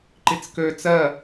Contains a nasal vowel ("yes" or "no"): no